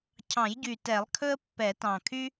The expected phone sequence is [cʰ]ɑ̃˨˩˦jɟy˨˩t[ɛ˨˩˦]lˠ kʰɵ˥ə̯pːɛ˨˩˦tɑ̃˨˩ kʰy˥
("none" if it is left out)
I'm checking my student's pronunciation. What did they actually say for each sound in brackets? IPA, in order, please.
cʰ, ɛ˨˩˦

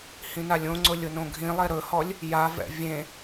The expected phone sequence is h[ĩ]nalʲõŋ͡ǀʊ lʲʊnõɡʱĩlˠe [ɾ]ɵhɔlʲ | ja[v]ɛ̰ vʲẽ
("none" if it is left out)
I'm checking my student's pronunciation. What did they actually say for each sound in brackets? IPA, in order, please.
ĩ, ɾ, v

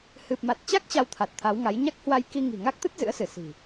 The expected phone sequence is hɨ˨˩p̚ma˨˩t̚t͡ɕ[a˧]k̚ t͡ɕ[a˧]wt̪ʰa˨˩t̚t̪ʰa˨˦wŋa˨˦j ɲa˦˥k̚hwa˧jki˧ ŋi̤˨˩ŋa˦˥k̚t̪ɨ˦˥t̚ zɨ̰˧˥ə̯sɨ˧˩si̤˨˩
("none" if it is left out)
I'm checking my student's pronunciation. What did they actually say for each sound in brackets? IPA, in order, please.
a˦˥, a˧

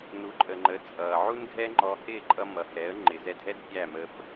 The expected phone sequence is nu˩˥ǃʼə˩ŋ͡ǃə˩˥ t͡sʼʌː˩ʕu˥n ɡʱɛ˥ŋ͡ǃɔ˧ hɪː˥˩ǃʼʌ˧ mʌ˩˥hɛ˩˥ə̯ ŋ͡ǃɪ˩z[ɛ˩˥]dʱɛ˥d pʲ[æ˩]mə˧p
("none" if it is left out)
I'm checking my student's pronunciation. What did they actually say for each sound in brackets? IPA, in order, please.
ɛ˧, æ˥˩

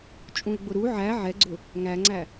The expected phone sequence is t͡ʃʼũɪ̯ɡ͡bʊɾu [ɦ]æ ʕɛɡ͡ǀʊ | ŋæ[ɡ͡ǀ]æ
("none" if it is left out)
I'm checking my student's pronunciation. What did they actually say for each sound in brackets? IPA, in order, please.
ʕ, ŋ͡ǀ

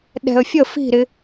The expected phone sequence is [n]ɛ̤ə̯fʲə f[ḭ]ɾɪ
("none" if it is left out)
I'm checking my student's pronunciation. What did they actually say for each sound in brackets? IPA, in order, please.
ɗ, i̤

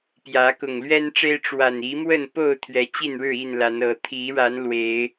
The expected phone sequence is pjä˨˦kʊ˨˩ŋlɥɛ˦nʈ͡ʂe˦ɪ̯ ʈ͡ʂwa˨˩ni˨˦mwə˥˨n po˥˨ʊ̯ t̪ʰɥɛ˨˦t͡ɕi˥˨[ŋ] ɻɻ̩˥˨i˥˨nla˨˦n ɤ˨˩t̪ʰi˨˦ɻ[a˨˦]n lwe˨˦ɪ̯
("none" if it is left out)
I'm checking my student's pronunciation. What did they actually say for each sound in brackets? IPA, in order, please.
n, a˨˦

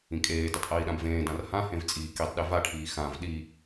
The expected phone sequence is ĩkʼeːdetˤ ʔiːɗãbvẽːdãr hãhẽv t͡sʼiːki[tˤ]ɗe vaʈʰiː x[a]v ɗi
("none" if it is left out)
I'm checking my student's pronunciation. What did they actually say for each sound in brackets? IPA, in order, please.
tˤ, ã

